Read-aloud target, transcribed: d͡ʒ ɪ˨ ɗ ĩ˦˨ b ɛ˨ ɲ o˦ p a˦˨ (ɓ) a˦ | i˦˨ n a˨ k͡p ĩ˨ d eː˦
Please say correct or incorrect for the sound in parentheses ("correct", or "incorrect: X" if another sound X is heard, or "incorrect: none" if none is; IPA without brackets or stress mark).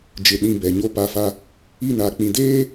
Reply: incorrect: f